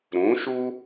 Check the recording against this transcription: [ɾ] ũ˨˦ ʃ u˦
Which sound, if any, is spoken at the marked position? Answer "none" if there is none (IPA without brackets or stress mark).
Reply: ɾ